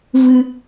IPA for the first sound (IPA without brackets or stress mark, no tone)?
v